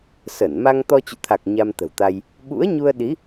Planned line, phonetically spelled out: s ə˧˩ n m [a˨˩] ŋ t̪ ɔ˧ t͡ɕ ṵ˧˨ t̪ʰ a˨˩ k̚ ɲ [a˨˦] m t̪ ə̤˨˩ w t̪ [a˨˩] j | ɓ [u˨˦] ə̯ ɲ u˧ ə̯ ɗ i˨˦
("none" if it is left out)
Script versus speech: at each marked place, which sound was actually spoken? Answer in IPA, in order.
a˧, a˧, a˧, ṵ˧˥

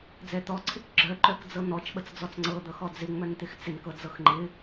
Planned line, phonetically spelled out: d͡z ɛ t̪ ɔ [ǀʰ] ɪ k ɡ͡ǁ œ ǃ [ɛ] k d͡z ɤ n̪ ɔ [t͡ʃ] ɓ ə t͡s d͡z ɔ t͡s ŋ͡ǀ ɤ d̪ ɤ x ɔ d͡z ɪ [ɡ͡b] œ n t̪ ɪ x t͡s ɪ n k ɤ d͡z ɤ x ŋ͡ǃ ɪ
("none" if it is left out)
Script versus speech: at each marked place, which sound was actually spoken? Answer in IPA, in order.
ǀʰ, œ, t͡ʃ, ŋ͡m

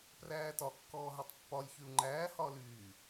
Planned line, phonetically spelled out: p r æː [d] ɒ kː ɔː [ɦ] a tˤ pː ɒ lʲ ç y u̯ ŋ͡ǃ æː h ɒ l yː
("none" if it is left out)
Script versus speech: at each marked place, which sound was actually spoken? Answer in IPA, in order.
t, ɦ

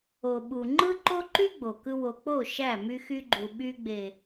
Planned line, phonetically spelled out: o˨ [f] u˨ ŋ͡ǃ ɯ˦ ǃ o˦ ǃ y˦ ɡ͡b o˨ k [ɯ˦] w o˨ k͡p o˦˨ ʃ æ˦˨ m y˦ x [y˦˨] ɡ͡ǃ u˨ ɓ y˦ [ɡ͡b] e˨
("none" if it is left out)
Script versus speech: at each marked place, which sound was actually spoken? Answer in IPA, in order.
ɓ, ɯ˦, y˦, ɡ͡b

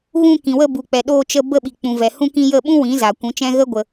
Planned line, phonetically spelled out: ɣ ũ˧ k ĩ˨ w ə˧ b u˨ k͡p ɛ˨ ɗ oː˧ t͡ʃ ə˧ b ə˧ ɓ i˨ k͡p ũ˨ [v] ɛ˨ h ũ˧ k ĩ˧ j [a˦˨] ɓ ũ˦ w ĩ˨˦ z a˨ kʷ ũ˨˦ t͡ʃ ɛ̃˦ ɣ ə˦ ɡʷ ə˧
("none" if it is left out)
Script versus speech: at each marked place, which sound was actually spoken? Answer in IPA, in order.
v, ə˦˨

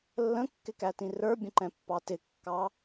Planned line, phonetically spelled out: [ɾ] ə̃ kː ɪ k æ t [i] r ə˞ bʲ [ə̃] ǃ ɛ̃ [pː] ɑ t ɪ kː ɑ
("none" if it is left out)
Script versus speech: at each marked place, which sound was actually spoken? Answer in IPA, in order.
lː, ĩ, ə̃, pː

